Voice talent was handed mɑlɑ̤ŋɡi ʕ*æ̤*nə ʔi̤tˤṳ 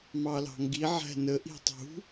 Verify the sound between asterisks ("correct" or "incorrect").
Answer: correct